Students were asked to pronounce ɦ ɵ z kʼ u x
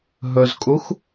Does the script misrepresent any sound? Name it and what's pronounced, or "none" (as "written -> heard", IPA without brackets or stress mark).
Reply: none